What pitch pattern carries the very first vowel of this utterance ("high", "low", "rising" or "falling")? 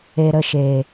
low